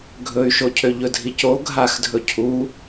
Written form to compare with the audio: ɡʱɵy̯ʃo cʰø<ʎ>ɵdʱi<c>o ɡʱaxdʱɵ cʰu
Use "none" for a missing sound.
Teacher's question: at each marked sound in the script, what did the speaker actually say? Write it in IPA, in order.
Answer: ʎ, c

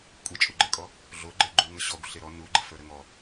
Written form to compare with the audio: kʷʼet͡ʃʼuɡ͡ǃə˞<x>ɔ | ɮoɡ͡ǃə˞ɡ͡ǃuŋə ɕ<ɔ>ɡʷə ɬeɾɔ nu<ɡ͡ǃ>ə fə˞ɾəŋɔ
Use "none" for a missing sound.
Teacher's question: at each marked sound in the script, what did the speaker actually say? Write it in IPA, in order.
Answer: kʼ, ɔ, ɡ͡ǃ

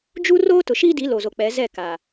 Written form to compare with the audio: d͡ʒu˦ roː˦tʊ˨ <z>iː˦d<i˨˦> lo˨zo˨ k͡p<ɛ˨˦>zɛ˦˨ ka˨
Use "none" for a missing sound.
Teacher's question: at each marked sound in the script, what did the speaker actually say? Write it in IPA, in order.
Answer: ʃ, i˨˦, ɛ˨˦

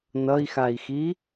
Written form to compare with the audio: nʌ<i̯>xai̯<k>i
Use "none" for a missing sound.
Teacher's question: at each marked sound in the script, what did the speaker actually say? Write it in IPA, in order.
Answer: i̯, x

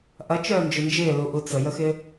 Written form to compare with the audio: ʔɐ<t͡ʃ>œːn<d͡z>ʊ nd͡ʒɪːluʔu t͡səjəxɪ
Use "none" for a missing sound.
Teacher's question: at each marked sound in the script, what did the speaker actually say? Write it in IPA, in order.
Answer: t͡ʃ, d͡ʒ

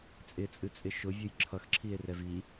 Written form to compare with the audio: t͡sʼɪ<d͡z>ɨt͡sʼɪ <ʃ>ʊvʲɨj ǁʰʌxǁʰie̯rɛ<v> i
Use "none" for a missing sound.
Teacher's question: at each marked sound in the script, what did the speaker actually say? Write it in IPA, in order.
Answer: t͡sʼ, ʃ, v

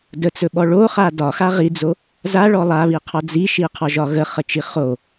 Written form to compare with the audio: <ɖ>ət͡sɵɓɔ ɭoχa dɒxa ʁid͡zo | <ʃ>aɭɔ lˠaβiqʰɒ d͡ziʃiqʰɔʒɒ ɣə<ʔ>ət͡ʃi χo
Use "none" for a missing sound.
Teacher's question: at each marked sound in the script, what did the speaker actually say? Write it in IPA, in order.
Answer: d, z, χ

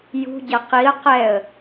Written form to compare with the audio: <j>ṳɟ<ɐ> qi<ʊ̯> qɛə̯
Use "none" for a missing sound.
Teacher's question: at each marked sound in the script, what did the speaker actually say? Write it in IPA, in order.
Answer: j, ɐ, ə̯

